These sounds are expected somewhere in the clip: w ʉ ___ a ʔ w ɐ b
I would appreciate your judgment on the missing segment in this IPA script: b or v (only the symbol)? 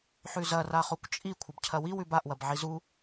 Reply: b